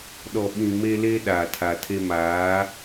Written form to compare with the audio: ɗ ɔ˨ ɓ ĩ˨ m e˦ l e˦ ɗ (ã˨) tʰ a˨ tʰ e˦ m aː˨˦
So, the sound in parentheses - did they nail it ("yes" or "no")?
no